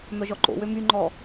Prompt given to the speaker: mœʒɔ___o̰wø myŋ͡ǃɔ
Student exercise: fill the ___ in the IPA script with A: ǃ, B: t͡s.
A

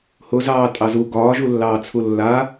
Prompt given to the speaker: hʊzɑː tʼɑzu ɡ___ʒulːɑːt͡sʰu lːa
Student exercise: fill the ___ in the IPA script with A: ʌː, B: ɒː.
B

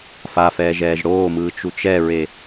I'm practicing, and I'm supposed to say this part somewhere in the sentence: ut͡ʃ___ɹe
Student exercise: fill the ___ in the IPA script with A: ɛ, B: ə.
A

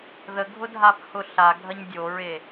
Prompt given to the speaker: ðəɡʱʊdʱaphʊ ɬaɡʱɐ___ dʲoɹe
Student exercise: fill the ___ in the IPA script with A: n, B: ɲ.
B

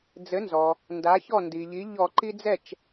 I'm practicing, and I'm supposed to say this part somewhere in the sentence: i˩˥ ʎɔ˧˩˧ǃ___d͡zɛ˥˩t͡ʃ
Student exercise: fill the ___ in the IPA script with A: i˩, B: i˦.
B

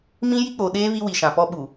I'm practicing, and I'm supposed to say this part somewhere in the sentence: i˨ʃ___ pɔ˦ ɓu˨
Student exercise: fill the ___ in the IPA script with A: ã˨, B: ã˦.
A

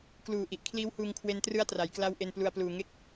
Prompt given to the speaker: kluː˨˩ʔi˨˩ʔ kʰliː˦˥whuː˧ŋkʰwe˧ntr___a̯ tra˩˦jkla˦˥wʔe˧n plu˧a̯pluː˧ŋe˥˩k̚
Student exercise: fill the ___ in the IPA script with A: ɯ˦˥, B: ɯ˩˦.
A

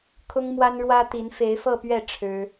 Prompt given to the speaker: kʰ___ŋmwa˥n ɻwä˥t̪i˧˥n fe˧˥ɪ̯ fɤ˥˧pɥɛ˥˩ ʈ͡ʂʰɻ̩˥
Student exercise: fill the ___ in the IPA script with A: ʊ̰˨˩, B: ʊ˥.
B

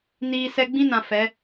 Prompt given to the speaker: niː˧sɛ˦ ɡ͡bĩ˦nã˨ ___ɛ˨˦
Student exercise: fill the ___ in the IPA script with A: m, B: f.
B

